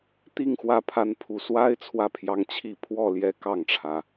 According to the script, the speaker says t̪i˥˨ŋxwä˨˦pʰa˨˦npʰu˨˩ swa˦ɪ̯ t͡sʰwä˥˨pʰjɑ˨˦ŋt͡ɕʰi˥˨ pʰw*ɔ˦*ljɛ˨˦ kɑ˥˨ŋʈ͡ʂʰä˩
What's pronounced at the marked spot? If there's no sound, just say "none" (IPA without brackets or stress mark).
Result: ɔ˥˨